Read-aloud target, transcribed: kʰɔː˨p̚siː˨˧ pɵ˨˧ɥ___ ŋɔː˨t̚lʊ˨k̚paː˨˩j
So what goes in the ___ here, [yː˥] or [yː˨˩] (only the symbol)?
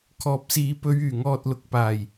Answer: yː˨˩